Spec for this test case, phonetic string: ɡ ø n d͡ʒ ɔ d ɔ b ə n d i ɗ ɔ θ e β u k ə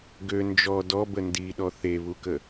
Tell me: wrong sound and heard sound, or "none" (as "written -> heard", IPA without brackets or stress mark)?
none